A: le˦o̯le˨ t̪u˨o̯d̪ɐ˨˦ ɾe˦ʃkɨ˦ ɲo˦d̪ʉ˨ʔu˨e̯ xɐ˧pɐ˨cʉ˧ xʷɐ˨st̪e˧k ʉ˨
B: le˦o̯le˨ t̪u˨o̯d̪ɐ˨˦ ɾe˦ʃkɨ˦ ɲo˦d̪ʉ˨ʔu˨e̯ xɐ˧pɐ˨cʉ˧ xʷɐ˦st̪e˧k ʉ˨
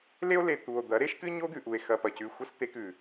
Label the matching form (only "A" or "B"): B